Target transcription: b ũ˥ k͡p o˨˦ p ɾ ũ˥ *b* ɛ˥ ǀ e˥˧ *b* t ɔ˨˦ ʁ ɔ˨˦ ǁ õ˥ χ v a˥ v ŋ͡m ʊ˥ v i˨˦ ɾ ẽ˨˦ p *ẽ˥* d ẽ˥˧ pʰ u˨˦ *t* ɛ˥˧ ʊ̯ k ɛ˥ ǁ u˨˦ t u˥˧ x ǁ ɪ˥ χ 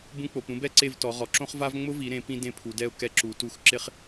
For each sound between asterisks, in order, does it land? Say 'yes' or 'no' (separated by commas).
yes, no, no, no